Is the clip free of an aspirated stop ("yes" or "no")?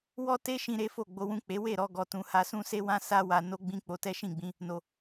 yes